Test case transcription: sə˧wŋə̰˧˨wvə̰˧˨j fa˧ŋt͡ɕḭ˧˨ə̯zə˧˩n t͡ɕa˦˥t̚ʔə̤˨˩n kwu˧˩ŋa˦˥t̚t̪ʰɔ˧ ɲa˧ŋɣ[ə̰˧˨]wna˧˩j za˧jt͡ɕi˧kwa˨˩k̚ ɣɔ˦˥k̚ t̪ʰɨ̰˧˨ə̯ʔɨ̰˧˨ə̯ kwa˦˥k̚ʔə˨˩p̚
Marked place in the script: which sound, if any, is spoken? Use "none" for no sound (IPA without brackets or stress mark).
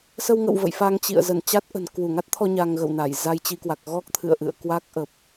ə̰˧˨